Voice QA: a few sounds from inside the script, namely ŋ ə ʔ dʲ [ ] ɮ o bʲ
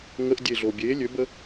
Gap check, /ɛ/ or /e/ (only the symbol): e